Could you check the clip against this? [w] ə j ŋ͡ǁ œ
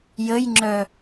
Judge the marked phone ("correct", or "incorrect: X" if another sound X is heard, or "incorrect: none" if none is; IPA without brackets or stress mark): incorrect: j